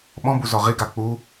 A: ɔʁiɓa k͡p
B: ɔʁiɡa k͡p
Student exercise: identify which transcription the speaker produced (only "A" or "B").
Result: B